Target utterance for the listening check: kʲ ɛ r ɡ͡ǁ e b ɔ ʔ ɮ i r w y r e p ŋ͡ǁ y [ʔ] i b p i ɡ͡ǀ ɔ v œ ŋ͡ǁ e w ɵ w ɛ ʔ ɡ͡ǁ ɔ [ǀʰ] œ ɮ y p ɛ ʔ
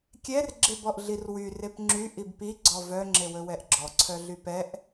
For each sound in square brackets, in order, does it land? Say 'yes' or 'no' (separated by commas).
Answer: yes, yes